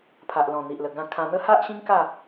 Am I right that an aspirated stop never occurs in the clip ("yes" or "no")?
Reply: no